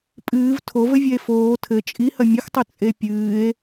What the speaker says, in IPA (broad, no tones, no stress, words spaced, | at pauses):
pʼɨːv tʰovɘvʲɛe̯ foː tʰɘ t͡ʃʼihɐ mʲɐxtˤɘ t͡sʼepʲɨːe̯